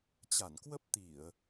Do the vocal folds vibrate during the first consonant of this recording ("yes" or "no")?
no